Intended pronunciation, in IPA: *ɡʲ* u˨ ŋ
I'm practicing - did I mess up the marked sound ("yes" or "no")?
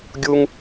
no